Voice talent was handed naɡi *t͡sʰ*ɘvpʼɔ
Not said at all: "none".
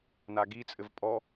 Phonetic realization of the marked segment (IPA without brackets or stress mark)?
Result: t͡sʼ